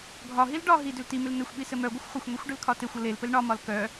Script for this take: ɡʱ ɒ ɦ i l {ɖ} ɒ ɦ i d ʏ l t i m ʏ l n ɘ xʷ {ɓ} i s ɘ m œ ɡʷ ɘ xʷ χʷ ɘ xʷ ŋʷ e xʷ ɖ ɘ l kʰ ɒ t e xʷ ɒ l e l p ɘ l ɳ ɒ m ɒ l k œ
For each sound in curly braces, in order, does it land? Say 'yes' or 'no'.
yes, yes

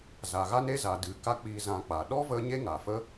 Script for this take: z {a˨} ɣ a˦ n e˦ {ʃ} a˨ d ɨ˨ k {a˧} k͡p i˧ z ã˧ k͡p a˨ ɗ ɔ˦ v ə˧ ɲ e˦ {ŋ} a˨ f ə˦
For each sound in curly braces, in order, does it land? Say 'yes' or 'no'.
yes, no, no, yes

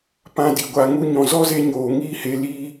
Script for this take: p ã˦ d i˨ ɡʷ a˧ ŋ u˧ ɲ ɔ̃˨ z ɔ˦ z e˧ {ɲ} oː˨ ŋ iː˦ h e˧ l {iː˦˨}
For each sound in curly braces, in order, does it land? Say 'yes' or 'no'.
yes, no

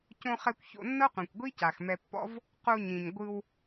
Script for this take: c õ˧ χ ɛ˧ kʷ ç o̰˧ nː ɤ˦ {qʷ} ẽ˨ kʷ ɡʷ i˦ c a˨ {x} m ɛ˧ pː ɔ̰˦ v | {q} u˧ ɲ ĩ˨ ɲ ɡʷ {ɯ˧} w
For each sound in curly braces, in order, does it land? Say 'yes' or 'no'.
yes, yes, yes, yes

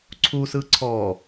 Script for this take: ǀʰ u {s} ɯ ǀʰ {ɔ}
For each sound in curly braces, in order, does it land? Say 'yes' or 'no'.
yes, yes

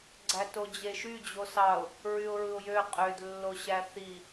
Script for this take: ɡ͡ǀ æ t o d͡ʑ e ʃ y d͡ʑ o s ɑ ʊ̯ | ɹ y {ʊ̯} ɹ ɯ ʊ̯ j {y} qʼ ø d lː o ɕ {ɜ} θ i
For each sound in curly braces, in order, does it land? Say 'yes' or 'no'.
yes, no, no

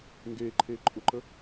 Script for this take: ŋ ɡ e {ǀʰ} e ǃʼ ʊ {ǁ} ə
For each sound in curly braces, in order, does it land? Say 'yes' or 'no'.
no, no

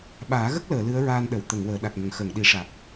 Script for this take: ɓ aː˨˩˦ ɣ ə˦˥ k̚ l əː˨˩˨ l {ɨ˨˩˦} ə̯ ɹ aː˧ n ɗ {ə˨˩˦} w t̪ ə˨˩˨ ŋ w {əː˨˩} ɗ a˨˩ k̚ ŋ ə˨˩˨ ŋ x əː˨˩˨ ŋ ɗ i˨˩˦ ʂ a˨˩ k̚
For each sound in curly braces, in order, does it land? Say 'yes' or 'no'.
no, no, no

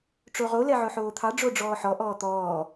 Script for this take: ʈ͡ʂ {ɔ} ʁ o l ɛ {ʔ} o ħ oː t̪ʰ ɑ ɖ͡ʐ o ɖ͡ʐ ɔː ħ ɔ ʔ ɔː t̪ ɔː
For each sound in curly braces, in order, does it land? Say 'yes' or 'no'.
no, no

